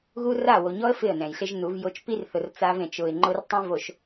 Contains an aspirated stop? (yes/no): no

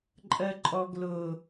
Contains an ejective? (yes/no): yes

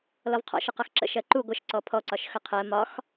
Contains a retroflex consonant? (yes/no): no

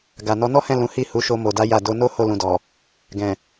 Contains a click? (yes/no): no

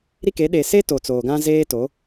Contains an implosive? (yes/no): yes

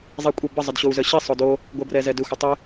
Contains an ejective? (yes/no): yes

